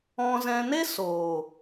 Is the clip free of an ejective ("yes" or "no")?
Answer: yes